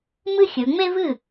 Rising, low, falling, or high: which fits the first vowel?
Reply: high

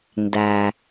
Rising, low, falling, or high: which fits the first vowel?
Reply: low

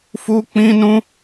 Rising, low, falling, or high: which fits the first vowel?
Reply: high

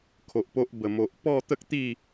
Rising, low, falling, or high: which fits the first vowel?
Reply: low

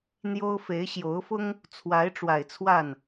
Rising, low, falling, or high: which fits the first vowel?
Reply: high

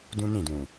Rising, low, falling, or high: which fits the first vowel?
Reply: high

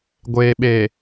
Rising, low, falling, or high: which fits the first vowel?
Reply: low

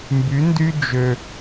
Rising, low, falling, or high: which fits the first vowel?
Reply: rising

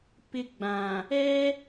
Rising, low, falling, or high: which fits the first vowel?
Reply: high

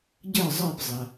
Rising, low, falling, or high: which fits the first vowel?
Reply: falling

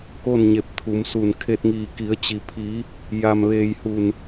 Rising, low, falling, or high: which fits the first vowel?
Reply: falling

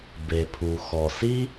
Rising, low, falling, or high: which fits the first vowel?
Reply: low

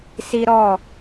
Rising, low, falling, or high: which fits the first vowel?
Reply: high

